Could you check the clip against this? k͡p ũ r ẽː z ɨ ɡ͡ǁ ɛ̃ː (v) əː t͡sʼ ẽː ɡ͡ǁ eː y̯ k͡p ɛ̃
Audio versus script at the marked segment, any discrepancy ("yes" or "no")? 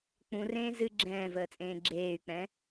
no